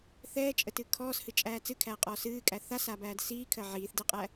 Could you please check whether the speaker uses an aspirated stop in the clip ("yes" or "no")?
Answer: yes